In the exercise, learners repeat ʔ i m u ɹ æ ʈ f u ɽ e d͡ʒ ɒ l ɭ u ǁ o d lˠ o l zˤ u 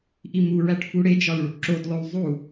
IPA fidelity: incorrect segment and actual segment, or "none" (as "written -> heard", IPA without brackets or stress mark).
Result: none